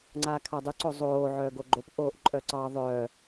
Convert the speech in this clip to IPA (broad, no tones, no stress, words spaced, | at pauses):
ŋ͡ǀaːkʰadˤʏ ǀozˤoː ʕœːɡoɡ͡ǃop ʔoːʔǃʼœǀɑ ðˤœː